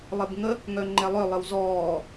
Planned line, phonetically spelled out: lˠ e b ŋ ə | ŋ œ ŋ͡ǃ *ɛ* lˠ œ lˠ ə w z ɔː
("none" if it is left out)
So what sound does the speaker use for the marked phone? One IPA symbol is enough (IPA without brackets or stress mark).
ɛ